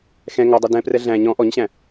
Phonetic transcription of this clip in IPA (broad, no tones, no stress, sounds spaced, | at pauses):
x ɛ̃ ŋ ɔ dˤ ɵ d ɛ̃ p r ɛ ɮ æ̃ ɲ ɔ̃ ʔ ɔ ɲ ɕ æ̃